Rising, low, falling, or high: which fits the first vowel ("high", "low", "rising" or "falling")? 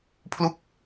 falling